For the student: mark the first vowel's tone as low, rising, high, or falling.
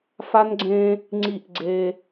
high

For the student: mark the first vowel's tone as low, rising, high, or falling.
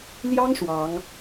high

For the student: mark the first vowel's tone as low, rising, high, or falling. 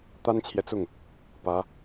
high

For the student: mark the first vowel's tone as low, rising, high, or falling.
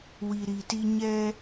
low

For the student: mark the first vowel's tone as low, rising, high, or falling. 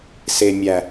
low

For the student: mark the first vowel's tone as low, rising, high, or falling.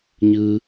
high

